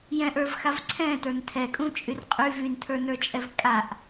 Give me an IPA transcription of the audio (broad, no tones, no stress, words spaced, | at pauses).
jɛ̃ʔə˞vxav ǀʰɛ̃tə˞n tʰɛkʼũt͡ʃʼyr qʼy vyntʰə˞nə˞t͡ʃʼɛv kʼaʔ